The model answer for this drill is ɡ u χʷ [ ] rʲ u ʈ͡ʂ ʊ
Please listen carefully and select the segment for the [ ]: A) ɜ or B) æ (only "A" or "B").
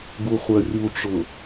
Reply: A